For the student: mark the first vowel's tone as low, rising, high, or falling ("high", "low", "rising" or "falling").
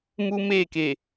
high